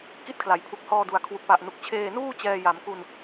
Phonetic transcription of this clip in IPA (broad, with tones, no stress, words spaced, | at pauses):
ki˥˩t̚kʰla˩˦j pʰu˨˩k̚hɔː˧du˨˩a̯ kʰwu˨˩k̚pa˨˩ʔnu˨˩k̚ t͡ɕʰeː˧nuː˥˩ t͡ɕɛː˧ja˩˦mku˧n